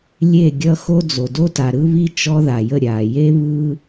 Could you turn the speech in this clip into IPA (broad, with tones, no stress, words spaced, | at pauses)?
lʲe˦˨ɡʲʌ˦ xo˦d͡zo˨ do˦ta˨ɾɯ˦ βi˦ t͡ʃɔ˦ða˨jə˦˨ ɾʲa˨ je˦βɯ˦